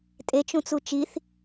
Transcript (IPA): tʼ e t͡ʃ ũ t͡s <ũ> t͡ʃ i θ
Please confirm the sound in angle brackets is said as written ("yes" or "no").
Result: no